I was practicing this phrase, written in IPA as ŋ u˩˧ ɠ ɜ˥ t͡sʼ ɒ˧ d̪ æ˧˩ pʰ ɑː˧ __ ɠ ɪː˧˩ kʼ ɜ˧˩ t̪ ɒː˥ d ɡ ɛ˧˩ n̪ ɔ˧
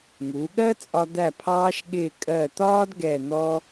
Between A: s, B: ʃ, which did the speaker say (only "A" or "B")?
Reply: B